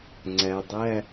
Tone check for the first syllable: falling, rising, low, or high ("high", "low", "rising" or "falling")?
low